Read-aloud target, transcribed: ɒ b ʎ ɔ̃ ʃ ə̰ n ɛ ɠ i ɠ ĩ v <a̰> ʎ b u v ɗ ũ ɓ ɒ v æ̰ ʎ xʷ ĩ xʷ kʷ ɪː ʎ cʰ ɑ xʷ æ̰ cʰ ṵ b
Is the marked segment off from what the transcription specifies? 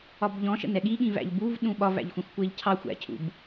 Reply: yes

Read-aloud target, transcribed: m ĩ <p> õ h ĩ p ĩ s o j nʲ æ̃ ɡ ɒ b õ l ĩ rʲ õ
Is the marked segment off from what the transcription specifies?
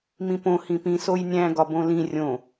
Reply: no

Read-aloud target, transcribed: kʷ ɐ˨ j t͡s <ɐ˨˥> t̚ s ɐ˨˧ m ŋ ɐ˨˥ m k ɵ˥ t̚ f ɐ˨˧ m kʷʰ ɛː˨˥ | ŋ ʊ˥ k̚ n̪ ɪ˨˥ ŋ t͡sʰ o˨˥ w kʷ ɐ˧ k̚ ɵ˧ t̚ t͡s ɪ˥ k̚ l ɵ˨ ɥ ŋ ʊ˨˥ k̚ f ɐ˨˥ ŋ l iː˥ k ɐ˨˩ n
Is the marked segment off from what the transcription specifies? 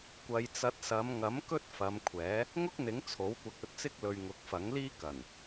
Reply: no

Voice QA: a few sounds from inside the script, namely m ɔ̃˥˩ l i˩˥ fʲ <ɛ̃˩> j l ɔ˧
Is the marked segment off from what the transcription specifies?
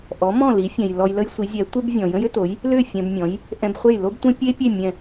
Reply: no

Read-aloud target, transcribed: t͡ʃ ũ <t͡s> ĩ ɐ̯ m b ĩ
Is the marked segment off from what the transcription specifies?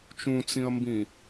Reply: no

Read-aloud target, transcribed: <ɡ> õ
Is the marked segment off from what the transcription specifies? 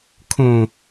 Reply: yes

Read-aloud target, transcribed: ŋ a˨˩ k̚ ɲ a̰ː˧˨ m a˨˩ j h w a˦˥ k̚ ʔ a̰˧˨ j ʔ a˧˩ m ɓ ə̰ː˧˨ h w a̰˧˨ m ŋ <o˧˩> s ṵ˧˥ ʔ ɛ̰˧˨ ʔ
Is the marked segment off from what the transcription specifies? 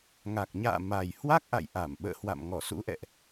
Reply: yes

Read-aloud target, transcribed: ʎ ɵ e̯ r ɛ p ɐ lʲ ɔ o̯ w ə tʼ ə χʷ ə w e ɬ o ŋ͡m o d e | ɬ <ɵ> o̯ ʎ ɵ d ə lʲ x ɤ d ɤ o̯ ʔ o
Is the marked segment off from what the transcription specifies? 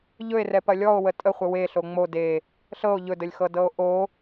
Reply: yes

